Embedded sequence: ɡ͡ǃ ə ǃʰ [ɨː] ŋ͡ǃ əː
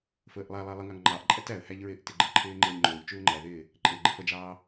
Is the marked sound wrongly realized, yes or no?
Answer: yes